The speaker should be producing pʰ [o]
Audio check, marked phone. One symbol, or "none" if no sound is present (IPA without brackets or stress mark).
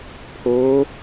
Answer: o